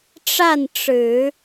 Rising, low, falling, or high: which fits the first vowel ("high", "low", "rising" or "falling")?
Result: falling